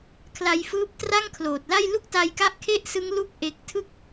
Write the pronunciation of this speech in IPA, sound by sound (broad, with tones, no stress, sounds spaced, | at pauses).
kʰ l a˧ j f ɯː˦˥ p̚ t r a˥˩ ŋ kʰ l oː˨˩ t̚ l a˥˩ j l u˥˩ k̚ t a˧ j k a˦˥ ʔ kʰ e˥˩ ʔ s ɯ˦˥ ŋ l u˦˥ k̚ ʔ e˦˥ k̚ tʰ ɯ˦˥ k̚